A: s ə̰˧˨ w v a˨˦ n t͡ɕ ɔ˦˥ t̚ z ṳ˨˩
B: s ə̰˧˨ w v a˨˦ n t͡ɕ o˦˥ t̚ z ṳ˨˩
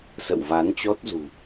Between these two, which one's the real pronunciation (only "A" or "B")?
A